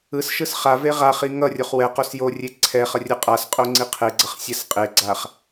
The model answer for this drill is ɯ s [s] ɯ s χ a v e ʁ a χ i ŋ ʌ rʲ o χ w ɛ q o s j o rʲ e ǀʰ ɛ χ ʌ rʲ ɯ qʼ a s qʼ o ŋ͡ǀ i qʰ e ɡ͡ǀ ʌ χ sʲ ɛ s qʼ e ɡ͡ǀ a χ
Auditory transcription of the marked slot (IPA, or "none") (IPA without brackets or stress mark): ʃ